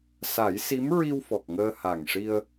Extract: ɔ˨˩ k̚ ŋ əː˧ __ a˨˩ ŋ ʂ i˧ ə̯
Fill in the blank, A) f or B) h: B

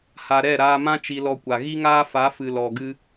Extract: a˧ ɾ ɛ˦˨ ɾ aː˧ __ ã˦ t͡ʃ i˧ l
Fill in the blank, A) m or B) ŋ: A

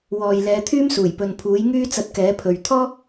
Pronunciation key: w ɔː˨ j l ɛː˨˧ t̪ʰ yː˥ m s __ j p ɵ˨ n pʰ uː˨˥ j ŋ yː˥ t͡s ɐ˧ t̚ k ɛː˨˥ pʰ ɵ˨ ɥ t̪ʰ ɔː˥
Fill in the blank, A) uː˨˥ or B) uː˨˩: B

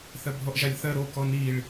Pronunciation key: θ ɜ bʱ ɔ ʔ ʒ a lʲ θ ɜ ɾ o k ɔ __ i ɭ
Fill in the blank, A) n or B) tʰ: A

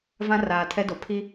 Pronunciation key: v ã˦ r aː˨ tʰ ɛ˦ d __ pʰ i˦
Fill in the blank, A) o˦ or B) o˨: B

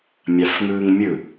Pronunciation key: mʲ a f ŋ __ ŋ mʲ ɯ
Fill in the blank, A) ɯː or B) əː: A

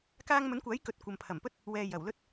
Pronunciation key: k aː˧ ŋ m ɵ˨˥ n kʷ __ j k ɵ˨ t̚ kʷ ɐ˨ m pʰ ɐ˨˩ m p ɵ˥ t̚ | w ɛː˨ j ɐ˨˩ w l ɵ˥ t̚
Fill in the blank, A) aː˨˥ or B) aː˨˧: A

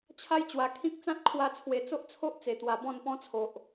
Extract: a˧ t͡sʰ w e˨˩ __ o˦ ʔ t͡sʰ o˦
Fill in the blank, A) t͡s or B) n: A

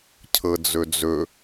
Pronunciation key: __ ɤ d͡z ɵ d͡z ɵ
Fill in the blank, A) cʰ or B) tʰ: A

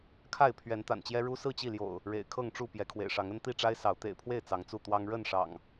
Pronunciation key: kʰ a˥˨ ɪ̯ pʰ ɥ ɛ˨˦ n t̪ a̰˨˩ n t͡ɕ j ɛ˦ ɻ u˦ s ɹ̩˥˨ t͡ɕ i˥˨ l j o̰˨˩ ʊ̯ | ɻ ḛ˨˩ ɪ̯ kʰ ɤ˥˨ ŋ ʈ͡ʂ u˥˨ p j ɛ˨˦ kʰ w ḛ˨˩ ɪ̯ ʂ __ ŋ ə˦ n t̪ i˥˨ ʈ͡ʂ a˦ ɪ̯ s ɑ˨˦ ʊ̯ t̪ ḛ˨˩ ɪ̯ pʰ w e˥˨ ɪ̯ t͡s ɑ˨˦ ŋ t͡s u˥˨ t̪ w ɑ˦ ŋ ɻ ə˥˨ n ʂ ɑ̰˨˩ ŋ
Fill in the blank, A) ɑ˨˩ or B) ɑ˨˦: B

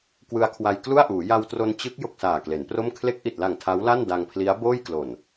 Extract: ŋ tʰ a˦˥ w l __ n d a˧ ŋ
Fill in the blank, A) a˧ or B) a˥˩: B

